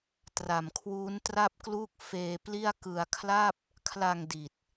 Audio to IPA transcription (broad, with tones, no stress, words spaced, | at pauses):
tra˨˩mkʰwuː˦˥ntra˥˩p̚kluː˥˩k̚ feː˧pli˥˩a̯kɯ˧a̯ kʰla˥˩p̚ | kʰla˨˩ŋ di˨˩t̚